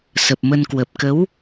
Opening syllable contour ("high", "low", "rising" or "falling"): low